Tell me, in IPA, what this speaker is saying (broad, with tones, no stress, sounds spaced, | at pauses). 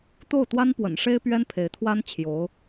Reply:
t̪ o˥˩ ʊ̯ t̪ w a˥ n p w ə̰˨˩ n ʂ e˥ ɪ̯ p ɥ ɛ˥ n pʰ e˧˥ ɪ̯ t̪ʰ w a˥ n t͡ɕʰ j o˧˥ ʊ̯